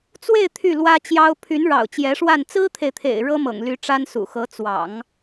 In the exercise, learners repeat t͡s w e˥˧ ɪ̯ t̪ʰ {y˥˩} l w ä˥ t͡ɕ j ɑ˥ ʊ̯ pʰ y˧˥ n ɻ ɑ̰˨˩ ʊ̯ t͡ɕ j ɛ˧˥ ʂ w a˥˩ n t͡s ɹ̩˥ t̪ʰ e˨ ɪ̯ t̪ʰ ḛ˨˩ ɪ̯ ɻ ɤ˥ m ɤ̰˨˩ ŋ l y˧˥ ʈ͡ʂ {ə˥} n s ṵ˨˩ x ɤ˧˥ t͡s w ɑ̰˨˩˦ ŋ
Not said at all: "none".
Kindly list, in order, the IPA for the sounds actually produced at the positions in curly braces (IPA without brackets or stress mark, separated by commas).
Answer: y˥˩, a˥